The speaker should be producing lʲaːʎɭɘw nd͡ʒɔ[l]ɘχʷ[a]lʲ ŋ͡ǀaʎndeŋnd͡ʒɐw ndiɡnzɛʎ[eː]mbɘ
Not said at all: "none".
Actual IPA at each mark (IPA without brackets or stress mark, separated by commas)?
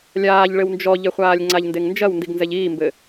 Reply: ʎ, aː, iː